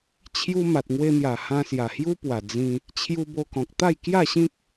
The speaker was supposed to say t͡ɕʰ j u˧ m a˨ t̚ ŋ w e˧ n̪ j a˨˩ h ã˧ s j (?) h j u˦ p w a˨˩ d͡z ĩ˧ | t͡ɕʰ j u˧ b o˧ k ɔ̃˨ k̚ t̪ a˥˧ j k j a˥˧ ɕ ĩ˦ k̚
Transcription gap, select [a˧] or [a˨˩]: a˨˩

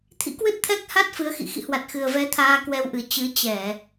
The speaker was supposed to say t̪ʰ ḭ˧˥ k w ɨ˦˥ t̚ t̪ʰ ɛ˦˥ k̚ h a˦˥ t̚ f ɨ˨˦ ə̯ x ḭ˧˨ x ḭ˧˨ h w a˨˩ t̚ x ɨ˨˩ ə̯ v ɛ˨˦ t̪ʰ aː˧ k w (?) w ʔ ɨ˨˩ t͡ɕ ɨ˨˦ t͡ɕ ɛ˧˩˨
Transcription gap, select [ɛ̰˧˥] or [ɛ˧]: ɛ˧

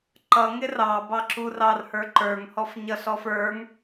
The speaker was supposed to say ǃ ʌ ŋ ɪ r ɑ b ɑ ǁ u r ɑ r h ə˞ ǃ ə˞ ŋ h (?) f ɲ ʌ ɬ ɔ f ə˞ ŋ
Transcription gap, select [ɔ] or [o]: ɔ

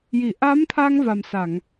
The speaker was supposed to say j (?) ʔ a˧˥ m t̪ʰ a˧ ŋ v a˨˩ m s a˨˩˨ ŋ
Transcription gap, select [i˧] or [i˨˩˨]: i˨˩˨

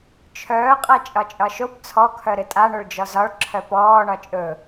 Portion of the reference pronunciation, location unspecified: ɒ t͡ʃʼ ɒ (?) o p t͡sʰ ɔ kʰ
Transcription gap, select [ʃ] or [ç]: ʃ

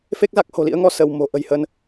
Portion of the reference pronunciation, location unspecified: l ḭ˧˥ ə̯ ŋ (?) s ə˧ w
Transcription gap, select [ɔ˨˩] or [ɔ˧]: ɔ˧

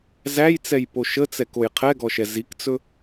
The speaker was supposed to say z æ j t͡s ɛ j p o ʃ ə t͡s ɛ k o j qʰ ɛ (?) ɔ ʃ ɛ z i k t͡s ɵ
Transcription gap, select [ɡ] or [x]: ɡ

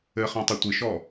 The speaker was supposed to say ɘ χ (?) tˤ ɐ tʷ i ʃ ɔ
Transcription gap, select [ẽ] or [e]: ẽ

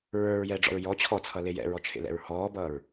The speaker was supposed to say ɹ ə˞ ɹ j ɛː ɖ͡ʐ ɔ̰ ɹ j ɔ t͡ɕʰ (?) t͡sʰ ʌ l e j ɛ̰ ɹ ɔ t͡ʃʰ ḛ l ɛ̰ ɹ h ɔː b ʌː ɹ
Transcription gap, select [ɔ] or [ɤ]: ɔ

